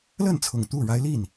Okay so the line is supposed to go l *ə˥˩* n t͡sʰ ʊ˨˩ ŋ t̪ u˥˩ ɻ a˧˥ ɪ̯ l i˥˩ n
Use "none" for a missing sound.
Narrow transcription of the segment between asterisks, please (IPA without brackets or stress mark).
ə˥˩